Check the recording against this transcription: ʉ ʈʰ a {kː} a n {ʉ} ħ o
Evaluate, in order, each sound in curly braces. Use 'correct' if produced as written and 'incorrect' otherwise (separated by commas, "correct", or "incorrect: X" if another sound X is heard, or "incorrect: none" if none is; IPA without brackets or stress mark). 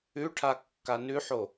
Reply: correct, correct